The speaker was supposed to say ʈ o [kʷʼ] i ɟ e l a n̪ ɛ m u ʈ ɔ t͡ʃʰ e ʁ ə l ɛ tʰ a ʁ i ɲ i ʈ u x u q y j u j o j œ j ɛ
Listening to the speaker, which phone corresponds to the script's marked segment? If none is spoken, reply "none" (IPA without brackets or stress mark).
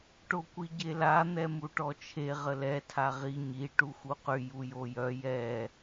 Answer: kʷ